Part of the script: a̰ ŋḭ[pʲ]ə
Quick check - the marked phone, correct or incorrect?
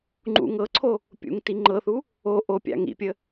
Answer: correct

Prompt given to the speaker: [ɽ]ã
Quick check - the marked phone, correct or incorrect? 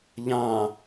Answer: incorrect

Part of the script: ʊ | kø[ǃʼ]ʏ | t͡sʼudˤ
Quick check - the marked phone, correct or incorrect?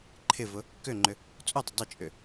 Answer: incorrect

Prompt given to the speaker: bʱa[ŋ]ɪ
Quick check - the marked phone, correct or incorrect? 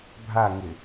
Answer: correct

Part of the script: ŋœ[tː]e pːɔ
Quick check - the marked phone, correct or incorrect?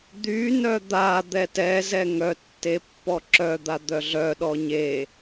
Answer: correct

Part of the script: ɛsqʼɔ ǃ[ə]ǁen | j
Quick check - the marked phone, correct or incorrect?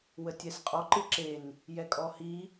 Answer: incorrect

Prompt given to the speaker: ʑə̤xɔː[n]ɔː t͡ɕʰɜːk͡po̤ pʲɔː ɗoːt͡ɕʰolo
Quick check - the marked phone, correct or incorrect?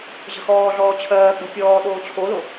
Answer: incorrect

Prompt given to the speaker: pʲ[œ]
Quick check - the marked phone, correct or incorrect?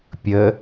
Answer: incorrect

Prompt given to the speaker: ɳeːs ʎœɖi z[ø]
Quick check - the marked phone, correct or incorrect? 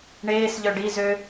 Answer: correct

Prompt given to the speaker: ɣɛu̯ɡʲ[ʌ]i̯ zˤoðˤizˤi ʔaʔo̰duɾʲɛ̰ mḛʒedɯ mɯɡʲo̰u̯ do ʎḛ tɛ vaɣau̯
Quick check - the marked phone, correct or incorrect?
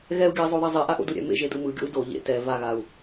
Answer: correct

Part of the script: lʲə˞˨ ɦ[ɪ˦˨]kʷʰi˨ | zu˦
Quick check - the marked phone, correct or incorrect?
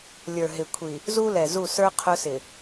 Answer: incorrect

